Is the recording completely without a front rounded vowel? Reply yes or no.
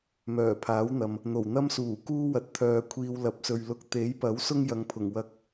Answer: no